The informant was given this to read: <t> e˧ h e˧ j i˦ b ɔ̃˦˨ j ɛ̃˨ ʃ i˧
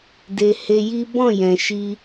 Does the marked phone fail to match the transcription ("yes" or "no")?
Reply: yes